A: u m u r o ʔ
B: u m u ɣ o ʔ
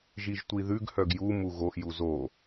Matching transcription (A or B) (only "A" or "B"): B